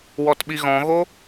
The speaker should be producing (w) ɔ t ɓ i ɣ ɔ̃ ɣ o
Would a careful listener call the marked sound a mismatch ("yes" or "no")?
no